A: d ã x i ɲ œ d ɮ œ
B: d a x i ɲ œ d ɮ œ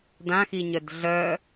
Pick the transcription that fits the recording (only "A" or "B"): A